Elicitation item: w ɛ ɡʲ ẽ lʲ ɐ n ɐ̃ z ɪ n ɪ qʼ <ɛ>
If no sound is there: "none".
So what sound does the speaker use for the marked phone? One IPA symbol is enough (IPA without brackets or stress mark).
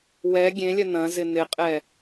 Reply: ɛ